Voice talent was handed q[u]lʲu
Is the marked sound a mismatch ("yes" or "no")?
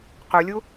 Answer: no